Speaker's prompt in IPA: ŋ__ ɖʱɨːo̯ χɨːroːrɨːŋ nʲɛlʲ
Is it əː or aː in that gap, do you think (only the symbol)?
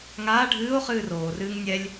aː